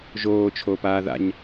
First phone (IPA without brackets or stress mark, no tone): ʒ